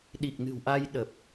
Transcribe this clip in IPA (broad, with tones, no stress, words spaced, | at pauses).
ɗi˨˩k̚nɨ̤˨˩wʔa˧j ɗə˨˩p̚